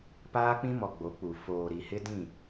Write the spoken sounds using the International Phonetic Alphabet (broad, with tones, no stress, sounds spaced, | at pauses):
p aː˦ k͡p ĩ˦ m ɔ˨ ɡ͡b o˨˦ k͡p u˨ f oː˨ ɾ i˨ h ɪ˦ d ĩ˦˨